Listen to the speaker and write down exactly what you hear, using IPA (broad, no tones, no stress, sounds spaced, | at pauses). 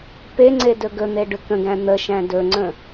p e ŋ͡ǀ e d ɵ ɡ ɵ n̪ e ɖ ʏ k ə̃ ɡ æ̃ n̪ ə ʃ æ̃ d ɵ ŋ͡ǀ ə̃